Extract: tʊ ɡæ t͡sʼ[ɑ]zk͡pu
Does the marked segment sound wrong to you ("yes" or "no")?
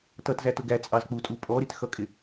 no